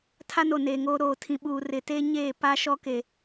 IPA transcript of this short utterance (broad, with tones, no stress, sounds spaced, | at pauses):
tʰ a˦ n o˨ n eː˨ ŋ oː˦ ɾ oː˦˨ tʰ ĩ˨ ɓ uː˨ r ɪ˨ t eː˦ ɲ eː˦˨ p a˦ ʃ ɔ˦ k e˨